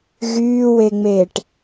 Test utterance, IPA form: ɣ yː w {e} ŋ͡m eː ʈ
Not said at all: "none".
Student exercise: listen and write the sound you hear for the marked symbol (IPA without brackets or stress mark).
e